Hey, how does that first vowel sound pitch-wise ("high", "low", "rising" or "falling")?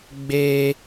high